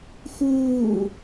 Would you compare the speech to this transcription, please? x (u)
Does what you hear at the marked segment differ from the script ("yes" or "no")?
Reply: yes